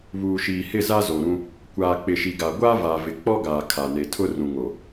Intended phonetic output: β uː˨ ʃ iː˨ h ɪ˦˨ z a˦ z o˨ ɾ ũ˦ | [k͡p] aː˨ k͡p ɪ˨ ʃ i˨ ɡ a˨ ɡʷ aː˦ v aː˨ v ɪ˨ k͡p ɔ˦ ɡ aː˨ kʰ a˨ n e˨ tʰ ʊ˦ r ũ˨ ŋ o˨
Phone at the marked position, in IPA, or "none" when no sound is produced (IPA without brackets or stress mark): kʷ